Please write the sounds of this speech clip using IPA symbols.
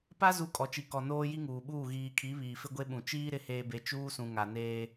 p a˦ z u˦ kʼ ɔ˨ t͡ʃ i˨ k ɔ˨ n oː˦ j i˦ ŋ uː˨ ɓ uː˦˨ ɣ iː˨ kʰ i˨˦ β iː˨ f ɪ˦ ɡʷ e˦ ɓ ũ˨ t͡ʃ iː˦ ɾ ɪ˦ h eː˦ b e˦ t͡ʃ uː˦ s ũ˨ ŋ a˨ n eː˦

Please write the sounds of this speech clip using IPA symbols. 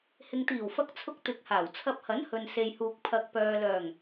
h ɪ˨ ŋ t̪ iː˨˩ w f ɐ˧ k̚ t͡sʰ ʊ˧ k̚ t̪ ɪ˨ k̚ h aː˨˩ w t͡sʰ ɐ˧ p̚ h ɐ˨˥ n h ɵ˨ n s e˨ j h uː˨ k̚ pʰ ɐ˨ k̚ p œː˨ l œː˨˩ ŋ

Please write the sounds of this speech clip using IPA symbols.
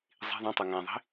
zˤ i̤ ðˤ õ tˤ o ŋ æ̃ ðˤ i̤

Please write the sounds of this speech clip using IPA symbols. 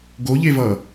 ɡ o ʎ e v ʌː

